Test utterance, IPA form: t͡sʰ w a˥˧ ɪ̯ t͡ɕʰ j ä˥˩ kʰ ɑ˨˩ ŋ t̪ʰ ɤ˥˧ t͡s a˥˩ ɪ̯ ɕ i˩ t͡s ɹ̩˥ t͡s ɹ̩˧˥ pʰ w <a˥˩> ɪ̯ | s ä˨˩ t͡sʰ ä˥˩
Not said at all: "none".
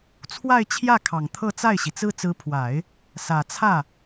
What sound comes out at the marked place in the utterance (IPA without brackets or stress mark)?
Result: a˨˩˦